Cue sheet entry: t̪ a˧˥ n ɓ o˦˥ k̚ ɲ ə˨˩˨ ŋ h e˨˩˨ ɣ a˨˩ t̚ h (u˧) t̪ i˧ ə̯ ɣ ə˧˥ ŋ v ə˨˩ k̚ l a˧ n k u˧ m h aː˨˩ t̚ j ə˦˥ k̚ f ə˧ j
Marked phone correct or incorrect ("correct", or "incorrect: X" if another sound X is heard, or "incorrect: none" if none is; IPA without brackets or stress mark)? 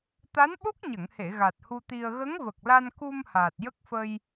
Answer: correct